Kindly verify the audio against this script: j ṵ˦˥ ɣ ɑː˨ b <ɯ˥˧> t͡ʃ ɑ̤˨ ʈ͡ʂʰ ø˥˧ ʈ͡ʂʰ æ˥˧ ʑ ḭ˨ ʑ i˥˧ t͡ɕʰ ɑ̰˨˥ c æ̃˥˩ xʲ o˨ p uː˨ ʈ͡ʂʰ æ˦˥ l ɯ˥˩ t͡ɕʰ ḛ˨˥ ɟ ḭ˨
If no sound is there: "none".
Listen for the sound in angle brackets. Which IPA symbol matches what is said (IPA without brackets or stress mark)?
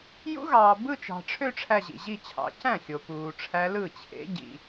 ɯ˥˧